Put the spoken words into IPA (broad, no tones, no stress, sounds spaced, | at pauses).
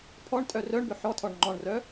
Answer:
pʰ ɔ ɳ tʼ œ r œ ɳ b ʏ ħ ɔ tʰ ɔ ɳ ŋ͡ǃ ɔ̃ ɳ r œ